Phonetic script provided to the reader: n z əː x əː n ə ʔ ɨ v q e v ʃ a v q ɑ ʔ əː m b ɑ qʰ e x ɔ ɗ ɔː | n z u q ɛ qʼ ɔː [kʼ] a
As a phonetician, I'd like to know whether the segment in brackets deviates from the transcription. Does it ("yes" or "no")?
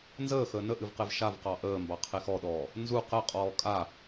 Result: no